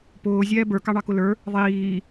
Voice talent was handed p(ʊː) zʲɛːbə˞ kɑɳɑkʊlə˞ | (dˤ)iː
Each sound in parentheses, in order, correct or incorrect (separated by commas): correct, incorrect